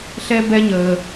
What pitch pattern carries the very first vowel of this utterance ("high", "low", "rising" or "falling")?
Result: high